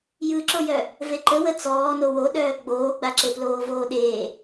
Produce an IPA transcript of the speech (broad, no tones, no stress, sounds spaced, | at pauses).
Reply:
j ɯ ǁ o j œ | v e ǃ ə w ə t͡s ɔː n o w o ɗ œː ɡ͡b oː ɡ͡b a ǁ e p l oː v oː ɗ eː